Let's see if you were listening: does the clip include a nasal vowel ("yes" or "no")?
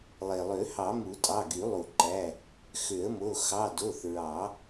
no